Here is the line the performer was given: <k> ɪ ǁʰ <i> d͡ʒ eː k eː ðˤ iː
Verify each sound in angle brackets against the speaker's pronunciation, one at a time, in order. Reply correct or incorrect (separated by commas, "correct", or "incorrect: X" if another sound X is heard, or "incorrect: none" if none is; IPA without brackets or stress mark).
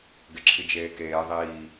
incorrect: ɡ, correct